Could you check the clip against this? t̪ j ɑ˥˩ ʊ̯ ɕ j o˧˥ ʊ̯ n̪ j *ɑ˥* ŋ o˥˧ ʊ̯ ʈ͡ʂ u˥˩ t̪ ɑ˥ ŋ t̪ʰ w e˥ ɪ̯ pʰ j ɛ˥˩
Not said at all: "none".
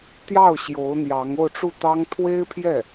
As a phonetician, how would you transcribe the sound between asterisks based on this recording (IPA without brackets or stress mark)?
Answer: ɑ˧˥